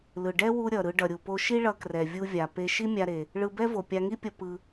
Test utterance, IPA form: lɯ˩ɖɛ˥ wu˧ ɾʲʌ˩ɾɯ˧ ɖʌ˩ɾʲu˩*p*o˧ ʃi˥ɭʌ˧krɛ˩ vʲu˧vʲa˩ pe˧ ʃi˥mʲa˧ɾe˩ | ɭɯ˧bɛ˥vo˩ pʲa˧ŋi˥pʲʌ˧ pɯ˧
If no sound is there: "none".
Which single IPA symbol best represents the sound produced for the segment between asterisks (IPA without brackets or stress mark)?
p